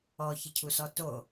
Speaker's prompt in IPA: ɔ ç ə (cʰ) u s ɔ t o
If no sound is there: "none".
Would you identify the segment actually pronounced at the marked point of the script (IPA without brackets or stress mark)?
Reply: cʰ